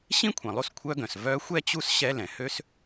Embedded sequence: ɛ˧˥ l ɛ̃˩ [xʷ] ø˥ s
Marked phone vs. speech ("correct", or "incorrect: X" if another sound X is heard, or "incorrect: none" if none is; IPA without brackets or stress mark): incorrect: h